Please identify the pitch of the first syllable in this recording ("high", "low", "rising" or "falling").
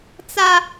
high